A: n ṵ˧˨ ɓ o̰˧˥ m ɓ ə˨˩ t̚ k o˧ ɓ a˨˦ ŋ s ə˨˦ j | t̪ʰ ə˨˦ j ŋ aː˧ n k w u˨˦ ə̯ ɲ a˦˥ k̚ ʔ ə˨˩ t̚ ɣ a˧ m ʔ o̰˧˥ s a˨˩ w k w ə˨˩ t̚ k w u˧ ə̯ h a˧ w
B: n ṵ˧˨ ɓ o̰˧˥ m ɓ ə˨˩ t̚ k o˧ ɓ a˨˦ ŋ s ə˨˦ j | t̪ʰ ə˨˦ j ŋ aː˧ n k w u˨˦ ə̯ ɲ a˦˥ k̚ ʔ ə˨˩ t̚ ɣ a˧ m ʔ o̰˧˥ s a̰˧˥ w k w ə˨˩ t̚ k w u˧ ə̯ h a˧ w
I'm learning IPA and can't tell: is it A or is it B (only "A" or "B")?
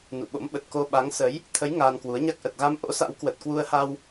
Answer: B